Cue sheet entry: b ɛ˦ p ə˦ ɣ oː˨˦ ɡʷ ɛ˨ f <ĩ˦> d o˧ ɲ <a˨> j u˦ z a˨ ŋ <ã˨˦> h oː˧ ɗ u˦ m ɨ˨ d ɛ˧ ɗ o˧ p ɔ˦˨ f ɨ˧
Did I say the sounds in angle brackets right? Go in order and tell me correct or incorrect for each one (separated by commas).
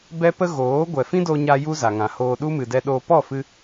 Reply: correct, incorrect, incorrect